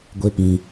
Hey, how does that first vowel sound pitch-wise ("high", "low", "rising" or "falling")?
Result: high